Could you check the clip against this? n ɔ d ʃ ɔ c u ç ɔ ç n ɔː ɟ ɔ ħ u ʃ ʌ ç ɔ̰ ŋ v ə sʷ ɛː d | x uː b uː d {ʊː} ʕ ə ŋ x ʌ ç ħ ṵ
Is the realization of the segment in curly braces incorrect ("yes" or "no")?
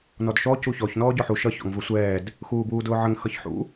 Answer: no